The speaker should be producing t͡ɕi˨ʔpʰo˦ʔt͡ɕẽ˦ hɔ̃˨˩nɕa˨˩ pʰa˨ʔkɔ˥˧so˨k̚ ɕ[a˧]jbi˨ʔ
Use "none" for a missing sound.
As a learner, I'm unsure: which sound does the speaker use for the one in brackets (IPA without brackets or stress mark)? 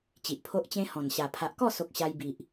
a˧